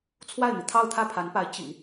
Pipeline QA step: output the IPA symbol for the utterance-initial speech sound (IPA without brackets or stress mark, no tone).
t͡sʰ